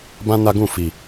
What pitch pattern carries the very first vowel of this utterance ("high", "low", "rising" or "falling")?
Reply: high